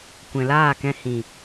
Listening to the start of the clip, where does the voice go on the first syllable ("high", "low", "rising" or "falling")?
low